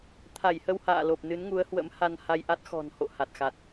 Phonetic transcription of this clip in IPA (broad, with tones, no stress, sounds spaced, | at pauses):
t̪ʰ a˧˩ j h ə˧ w h a̰ː˧˨ l o˨˩ p̚ n ɨ˨˦ n ŋ u˨˦ ə̯ h w ə̰˧˥ m h a˧ n h a˧ j ʔ a˦˥ t̚ x ɔ̤˨˩ n h o̰˧˨ h a˨˩ t̚ x a˨˩ t̚